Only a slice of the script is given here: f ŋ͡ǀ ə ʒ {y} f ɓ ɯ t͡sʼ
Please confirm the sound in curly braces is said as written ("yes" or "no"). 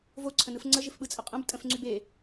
no